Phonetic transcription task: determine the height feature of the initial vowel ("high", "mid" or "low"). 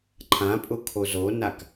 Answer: low